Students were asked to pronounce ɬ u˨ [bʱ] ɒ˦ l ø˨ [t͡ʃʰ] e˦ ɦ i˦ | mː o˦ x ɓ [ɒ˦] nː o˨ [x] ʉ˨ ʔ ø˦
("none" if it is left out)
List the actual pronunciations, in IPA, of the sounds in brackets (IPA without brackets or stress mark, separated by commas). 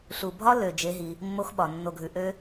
bʱ, d͡ʒ, ɒ˨, ɡʱ